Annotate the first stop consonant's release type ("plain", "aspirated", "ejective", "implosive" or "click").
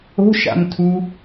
aspirated